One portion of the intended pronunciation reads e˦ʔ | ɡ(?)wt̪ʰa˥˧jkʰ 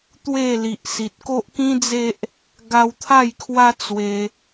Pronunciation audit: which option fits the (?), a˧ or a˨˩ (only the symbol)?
a˧